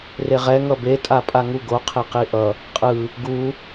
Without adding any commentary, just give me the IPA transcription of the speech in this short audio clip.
reʁɛ ŋʌbe tʼapʼaŋuɡo qʰeqiʔʌ | qʼɯ | ɡu

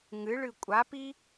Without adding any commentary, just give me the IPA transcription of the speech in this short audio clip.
ŋɨɭɨ kʷʼapi

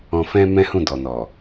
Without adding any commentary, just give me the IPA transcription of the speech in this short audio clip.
ɔ̃˨fɛ̃˧ mɛ̃˦hũ˦˨ dɔ˨nɔ˨

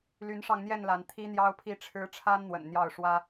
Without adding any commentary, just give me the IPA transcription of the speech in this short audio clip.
ly˨˦nʂɑ˧ŋn̪jɛ˥˨n la˨˦n t̪ʰi˦n̪jɑ˦ʊ̯pʰi˥˨ʈ͡ʂʰɻ̩˦ ʈ͡ʂʰa˦nn̪wə̰˨˩n n̪jɑ˥˨ʊ̯ʂwä˦

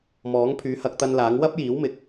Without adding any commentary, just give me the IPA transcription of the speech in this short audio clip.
mɔː˨˥ŋpʰyː˨˥ hɐ˨˥k̚t̪ɐ˧nlaː˨˥ŋ wɐ˥p̚jiː˨˥wmɪ˨k̚

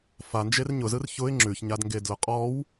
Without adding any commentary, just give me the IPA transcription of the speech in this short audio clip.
fand͡ʒer ɲʊzɯr çʊɪ̯ ŋ͡ǁʉçɲadŋɡedlʊ qʼɔw

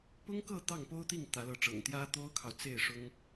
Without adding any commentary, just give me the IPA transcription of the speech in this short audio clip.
pʊ˥ŋkɤ˥˧ t̪ɑ˥˩ŋpo˥ʊ̯t̪i˥˩ŋ t̪ä˧˥lɤ˧˥ʈ͡ʂɤ̰˨˩ŋ t̪jä˥t̪o˥ʊ̯kʰɑ˨ʊ̯ t͡se˥˩ɪ̯ʂʊ˥ŋ

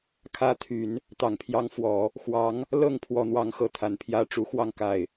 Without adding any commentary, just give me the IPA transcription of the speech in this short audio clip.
kʰä˧˥t̪ʰy˨˩˦n | t̪ɑ˨˩ŋpʰjɑ˧˥ŋfwɔ˨˩˦ | xwɑ˧˥ŋ | lɤ˥˩ŋ pʰwɔ˥n̪wɑ˥ŋxɤ˥˩ t̪ʰa˧˥npʰjä˥ ʈ͡ʂu˨˩xwɑ˥˧ŋ ka˥˩ɪ̯

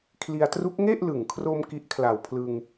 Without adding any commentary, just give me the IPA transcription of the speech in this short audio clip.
kʰli˧a̯tru˦˥k̚ ŋe˥˩ʔlɯ˨˩ŋkʰro˧m ki˦˥ʔkʰla˨˩wpʰlɯ˧ŋ

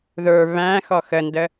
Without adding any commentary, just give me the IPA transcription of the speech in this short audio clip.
ðə˞ βæ̃ xɔxəndə

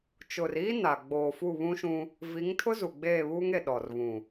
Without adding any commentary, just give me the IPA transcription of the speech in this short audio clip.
t͡ʃʊ˨riː˦ na˨ ɡ͡boː˨ fu˦˨βũ˦ʃũ˦ | vi˨˦ŋtʰʊ˦zu˨ ɡ͡beː˦˨βuː˦ŋe˨ ɗɔ˨r βũ˨

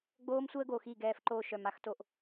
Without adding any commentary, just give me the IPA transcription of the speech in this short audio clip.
ɡ͡boː˦msʷəː˦ɡo˨ xi˦˨ɡɛː˧fǃoː˧ ʃœ˨ma˦x to˧ʔ

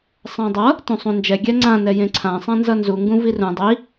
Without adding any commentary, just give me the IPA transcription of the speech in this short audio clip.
sˤãdˤʌ | tũsˤũnd͡ʒɛ ɡʲɛŋ͡ǀã nɛjẽǀʰã sˤãnzʌnzu ŋɡũvirũ dˤi

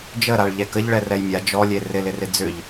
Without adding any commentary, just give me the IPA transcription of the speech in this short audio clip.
d͡ʒəɾaɭ ʎɛkəʎ ɭɛrɛjmʲa d͡ʒɔlʲe rɪlɪrɪ d͡zʏʎ

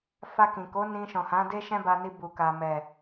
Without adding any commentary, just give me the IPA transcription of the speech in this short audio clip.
fa˧kĩ˨ko˨˦ nĩ˧ʃɔ̃˨hã˨˦ de˦ ʃɛ̃˦ba˧ni˧ bu˨ka˨ mɛ˨

